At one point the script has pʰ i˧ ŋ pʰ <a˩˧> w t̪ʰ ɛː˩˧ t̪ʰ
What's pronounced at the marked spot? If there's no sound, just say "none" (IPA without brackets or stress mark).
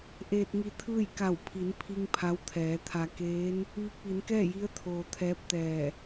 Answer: a˧˥